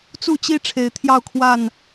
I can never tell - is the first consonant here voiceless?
yes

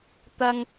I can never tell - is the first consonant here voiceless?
yes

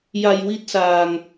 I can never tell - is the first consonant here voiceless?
no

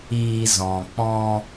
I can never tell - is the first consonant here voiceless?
no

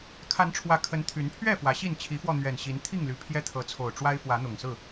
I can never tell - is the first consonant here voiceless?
yes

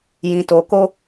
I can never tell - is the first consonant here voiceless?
no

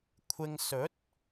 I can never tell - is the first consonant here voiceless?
yes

